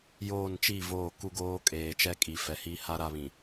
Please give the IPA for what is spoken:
joː˦˨n t͡ʃi˦˨ voː˦˨ku˦ɡoː˦ kʼeː˨t͡ʃɛ˦kʼi˨ fɛ˨hi˦ha˦ ɾa˦˨βĩ˨

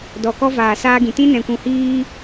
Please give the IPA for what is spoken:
dɔ˨kɔ˦vaː˨ saː˦ɡĩ˨ tĩ˦nɛ̃˨kʷũ˨ hiː˦

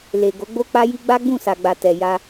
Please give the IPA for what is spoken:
le˨ ɡo˨˦ɡ͡bo˦k͡pa˦ji˦ ɡ͡ba˦ɡ͡bũ˦˨sa˨ɡ͡ba˨ tɛ˨ja˧

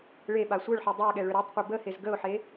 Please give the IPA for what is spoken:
ɭeɓa sʷœɭħi dˤøɪ̯ɠɛ ɭøɾøtˤqʷi bə hezɡəʊ̯ħe

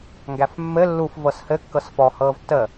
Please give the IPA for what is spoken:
ŋɡæfmːɘ lːuf vɤshɘ kːɤsfɔ hɤːvtːə

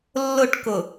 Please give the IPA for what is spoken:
lːʊʈkʊ

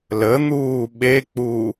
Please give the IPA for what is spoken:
lən̪uː ɓek͡pu

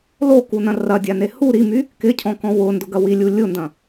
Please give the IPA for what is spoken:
lokunɐ̃ rɐdʲane hu ɾimy | kɪcʰɔ̃kɔ̃ wʊndʊɡɐ wilʲu lʲʊndɐ̃

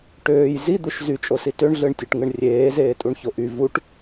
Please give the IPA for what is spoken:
ʈøːj zid̪uʃ zyt͡ʃʼosi tøɳɮɯɳtʲøʈŋɯɳ rʲeːzeːtʼuɳço ʔy vuʈ

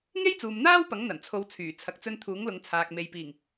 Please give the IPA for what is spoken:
ŋe˥jt͡suː˨mn̪aː˥w pɐ˨˥ŋn̪ɐ˨˩nt͡sʰo˨˧wt͡sʰyː˨˩ t͡sʰɐ˨k̚t͡sɵ˧n t̪ʰuː˨˥ŋlʊ˨˧ŋt͡sʰaː˨k̚ me˨jpiː˨˩ŋ

